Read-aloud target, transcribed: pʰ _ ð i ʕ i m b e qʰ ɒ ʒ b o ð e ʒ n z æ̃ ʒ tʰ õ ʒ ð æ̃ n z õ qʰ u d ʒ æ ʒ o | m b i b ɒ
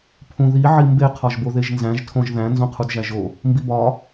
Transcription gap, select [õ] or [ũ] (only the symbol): ũ